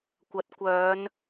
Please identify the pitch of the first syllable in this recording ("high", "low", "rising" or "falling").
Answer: rising